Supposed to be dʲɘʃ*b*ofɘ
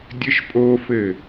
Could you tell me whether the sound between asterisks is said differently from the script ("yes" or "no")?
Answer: yes